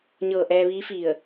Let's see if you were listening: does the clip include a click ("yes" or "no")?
no